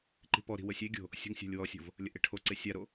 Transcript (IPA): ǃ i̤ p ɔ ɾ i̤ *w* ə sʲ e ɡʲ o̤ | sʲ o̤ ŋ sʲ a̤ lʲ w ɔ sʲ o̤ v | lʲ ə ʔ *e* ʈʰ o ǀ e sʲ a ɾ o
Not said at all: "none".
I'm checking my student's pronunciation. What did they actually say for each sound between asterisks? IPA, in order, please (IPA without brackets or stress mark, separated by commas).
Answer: w, e